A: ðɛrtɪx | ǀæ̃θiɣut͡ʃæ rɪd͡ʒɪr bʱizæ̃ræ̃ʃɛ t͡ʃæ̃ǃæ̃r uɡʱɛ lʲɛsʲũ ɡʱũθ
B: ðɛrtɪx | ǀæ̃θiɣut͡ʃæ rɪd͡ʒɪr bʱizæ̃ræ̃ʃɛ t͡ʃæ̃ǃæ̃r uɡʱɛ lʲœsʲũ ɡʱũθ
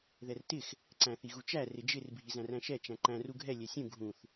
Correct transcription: A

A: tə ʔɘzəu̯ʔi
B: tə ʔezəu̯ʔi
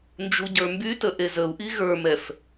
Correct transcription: B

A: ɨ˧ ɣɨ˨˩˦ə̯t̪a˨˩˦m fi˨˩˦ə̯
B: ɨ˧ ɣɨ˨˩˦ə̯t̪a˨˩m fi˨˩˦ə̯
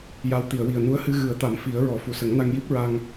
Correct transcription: A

